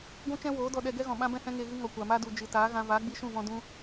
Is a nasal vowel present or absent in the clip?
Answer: present